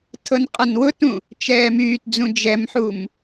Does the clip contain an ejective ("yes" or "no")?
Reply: yes